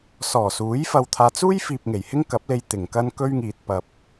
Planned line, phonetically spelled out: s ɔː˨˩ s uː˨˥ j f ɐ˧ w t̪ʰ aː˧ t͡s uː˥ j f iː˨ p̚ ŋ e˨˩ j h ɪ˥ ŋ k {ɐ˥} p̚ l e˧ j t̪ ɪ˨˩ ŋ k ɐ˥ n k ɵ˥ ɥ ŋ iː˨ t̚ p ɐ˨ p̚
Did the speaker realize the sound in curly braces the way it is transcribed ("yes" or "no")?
no